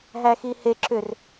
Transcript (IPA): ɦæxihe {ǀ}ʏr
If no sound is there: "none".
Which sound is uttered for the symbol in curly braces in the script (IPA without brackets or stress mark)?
ǁ